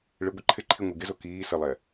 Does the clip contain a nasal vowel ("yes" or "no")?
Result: no